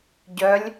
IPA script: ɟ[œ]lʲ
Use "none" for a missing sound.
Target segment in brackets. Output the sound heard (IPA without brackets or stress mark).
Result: œ